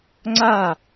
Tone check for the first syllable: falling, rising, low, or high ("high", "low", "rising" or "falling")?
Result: falling